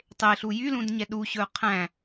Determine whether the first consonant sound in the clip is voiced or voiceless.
voiceless